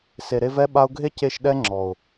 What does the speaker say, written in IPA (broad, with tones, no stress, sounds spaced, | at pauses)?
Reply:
s e˨ ɾ e˧ v ɛ˦ ɓ a˧ ʊ̯ ɡʱ e˦ c e˧ ʃ ɗ ɛ˦ ŋ͡ǁ ɔ˨ ʊ̯